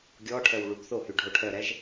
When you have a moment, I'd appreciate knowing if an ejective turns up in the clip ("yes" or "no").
no